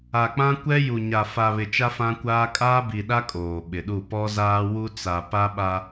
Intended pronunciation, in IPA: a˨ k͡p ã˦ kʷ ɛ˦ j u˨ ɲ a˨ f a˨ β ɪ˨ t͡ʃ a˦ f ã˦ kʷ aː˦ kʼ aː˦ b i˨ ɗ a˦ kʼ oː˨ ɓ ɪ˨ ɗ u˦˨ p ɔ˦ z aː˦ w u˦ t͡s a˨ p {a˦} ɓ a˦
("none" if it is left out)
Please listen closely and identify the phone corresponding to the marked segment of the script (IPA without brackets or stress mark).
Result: a˦